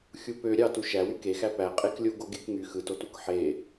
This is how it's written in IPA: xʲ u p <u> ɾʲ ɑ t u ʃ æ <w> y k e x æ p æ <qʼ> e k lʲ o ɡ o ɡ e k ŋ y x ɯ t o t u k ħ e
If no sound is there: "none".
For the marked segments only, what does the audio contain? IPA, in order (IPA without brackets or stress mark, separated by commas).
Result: ø, w, qʼ